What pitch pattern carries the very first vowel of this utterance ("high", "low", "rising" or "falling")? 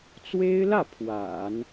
high